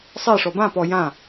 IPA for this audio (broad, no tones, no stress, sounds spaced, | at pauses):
sˤ e ʂ ɔ b ã p ɔ j ã